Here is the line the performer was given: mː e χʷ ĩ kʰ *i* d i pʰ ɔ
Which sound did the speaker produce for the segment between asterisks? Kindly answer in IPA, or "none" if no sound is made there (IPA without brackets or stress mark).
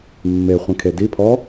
e